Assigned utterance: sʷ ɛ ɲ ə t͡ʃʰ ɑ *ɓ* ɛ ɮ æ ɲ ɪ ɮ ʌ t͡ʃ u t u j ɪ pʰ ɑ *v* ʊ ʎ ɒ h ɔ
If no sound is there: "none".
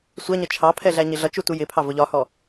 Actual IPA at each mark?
pʰ, v

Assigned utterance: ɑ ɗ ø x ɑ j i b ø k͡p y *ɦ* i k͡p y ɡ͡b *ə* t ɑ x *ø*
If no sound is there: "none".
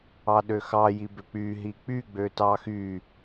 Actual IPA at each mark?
ɦ, ø, y

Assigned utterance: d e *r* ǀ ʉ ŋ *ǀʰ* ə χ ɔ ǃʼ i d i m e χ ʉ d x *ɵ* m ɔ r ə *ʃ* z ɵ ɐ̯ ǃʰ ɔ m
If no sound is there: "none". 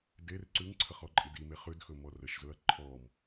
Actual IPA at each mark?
r, ǀʰ, ɵ, ʃ

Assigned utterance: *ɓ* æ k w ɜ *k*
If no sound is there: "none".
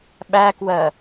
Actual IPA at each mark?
ɓ, none

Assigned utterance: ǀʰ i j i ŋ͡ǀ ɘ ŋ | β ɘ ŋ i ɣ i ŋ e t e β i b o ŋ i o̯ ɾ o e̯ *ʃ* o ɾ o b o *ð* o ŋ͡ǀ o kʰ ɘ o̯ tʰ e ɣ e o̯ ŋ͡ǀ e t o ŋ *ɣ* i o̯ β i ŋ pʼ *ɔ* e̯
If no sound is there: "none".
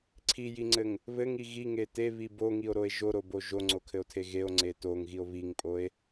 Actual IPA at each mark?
ʒ, ʒ, ɣ, o

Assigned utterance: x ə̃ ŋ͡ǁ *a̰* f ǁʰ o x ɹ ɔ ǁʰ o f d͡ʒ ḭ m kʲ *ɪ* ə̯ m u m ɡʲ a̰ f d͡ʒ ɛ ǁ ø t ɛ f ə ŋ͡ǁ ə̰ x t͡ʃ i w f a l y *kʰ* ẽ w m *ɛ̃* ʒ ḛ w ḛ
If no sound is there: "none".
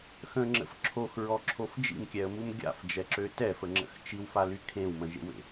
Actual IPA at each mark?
ə̰, ɛ, kʰ, ə̃

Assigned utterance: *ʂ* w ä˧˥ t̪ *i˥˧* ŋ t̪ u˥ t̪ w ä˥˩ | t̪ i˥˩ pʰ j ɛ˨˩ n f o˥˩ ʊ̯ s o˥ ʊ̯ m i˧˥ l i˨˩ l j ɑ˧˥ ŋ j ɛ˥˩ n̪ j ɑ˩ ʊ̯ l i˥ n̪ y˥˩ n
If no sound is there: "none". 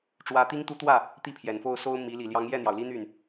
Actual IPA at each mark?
ʈ͡ʂ, i˥

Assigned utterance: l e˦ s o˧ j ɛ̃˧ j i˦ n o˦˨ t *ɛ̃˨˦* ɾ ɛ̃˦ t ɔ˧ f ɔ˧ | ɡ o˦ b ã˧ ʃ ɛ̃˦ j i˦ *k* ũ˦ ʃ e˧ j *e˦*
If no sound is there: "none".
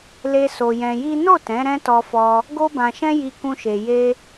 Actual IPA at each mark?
ɛ̃˨˦, k, e˦

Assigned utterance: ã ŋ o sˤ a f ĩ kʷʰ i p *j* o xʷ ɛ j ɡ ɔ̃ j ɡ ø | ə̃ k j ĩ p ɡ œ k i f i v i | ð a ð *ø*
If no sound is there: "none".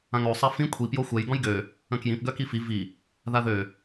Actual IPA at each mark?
j, ø

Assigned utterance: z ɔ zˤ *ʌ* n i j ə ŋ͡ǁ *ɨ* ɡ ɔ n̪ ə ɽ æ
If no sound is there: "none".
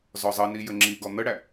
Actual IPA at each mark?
ʌ, i

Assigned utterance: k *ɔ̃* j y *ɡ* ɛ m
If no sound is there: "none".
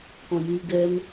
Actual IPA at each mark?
ɔ̃, ɡ

